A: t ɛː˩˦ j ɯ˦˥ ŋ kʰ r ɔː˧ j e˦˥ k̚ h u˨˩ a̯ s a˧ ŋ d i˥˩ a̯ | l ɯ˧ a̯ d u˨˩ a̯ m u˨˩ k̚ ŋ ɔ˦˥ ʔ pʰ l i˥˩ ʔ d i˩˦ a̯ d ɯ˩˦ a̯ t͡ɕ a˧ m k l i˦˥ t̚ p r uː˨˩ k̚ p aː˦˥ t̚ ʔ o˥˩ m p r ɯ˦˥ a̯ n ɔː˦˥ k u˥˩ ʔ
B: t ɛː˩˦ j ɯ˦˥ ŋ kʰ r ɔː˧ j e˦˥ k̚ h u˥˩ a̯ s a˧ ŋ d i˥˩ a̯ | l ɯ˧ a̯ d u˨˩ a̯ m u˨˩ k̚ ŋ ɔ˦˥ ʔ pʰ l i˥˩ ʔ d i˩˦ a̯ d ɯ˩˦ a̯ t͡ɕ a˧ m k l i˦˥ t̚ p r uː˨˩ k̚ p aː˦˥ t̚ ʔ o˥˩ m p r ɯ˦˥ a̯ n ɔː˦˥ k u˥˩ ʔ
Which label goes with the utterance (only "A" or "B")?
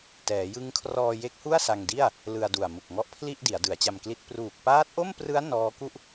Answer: B